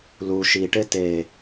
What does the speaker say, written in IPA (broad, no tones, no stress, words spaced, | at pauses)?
lu ʃiʈe te